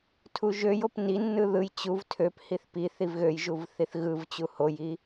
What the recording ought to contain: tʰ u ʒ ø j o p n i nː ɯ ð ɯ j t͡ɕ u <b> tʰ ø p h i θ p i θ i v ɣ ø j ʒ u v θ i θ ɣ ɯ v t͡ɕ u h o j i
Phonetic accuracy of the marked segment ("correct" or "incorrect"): incorrect